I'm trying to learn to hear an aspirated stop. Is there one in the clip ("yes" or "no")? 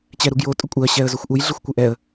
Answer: no